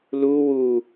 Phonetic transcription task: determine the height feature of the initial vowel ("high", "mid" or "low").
high